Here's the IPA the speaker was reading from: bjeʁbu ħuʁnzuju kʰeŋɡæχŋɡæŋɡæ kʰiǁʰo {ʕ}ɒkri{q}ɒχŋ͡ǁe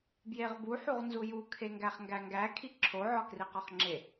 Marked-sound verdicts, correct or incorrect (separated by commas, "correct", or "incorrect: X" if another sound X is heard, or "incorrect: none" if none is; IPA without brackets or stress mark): correct, correct